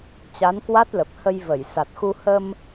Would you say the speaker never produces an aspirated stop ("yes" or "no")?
yes